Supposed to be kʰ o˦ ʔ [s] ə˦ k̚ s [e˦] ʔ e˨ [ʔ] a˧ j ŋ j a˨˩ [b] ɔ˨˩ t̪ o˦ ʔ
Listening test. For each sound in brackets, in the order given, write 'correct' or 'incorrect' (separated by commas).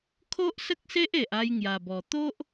correct, correct, correct, correct